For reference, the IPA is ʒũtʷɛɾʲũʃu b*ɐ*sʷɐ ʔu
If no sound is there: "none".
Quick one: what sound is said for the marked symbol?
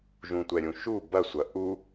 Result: ɐ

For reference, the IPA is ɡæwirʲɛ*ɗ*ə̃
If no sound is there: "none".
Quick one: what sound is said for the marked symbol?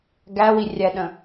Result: ɗ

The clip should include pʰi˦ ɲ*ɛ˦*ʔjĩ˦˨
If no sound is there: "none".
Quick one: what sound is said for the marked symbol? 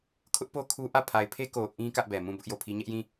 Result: ɛ˦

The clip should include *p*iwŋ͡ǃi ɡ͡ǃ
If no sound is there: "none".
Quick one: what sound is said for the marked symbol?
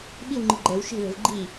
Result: ɓ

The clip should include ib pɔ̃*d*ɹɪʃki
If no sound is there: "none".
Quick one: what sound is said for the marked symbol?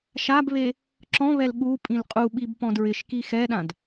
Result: d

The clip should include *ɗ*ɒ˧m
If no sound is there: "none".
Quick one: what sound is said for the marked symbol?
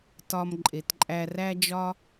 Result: t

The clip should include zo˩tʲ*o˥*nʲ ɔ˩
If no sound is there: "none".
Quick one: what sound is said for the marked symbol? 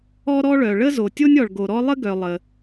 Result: o˥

